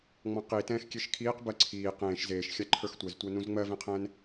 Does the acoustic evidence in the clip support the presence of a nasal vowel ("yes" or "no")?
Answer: yes